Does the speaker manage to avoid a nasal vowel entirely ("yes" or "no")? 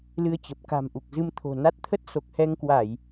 yes